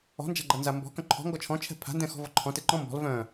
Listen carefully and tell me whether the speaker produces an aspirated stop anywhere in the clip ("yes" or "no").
yes